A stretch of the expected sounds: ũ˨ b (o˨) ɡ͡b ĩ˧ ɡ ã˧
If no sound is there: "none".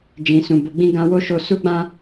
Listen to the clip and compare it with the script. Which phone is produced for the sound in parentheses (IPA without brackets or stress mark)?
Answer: o˨